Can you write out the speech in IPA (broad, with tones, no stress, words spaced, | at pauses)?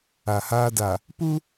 a˨haː˦da˨ | pu˦